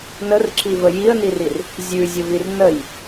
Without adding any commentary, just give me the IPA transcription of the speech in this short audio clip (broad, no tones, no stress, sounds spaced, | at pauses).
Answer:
n ə r ǁ i v ə j i ə̯ n i r i r | zʲ ʉ zʲ ə v i r n ə j